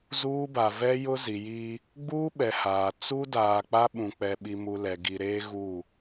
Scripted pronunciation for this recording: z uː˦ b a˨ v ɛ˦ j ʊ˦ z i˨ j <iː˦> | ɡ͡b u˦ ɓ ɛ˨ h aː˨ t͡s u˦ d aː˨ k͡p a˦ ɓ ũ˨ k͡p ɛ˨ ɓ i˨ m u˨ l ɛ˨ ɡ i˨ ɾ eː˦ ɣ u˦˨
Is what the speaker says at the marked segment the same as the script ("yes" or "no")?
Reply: no